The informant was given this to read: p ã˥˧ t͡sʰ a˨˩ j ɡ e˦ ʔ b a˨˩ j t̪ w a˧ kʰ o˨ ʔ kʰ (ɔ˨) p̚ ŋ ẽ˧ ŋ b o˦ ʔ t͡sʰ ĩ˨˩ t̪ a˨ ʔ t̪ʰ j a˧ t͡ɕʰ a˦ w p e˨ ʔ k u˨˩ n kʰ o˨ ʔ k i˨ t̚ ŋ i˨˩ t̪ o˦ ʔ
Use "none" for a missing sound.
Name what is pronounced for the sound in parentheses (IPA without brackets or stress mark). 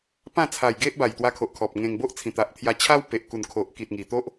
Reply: ɔ˨